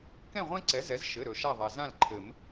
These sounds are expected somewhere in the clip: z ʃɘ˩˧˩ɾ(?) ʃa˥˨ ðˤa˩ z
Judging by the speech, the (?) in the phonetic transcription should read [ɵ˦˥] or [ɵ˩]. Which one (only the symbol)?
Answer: ɵ˩